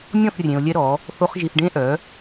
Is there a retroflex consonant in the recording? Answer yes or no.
yes